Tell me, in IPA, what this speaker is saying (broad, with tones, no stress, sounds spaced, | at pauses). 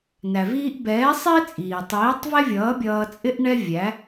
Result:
n æ˨ v iː˦ ʔ b ɛː˨˦ sˤ ɪː˦ t͡sʼ iː˨ tˤ iː˨˦ tˤ v ɛ˦ vʲ ʌː˨˦ bʲ ʌː˧ t͡sʼ ɪ˦ ʔ ɳ ɛ˦ vʲ æ˨˦